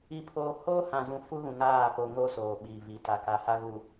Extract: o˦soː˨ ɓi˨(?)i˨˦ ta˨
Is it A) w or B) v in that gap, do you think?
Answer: B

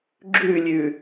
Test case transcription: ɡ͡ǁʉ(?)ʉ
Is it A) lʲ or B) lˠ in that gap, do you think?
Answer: A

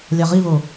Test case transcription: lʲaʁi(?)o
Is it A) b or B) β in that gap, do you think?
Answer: B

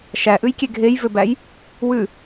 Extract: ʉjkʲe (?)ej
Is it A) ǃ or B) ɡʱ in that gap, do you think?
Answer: B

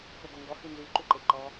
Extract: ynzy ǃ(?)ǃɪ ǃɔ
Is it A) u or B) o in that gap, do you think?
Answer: A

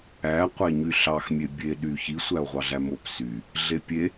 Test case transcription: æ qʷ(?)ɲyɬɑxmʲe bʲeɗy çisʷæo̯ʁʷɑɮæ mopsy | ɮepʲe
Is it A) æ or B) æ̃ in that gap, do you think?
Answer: A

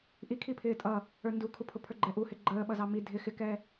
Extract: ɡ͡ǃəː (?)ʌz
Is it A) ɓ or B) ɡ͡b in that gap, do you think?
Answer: A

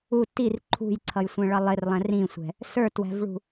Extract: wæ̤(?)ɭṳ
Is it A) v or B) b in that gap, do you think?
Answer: A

